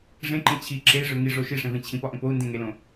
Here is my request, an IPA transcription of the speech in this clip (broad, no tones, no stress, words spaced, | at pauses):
ʐẽǃẽ t͡ɕʰi ǁei̯ʐø ŋiʐo ʃiʂẽvẽ t͡ɕʰĩpɒʔẽp ou̯ndẽŋelõ